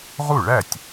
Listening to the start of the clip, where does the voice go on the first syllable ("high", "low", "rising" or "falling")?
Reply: falling